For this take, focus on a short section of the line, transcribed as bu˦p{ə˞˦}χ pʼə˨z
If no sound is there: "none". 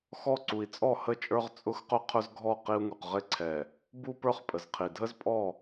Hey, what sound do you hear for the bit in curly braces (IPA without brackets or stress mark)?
ə˞˦